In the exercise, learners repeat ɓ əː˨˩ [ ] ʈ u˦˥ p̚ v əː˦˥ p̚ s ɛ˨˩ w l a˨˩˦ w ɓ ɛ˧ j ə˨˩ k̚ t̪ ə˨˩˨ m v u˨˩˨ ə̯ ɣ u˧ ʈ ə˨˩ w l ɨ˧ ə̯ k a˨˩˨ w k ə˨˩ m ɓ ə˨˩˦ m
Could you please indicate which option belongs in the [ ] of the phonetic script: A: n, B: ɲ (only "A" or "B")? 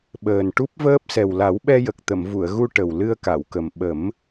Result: A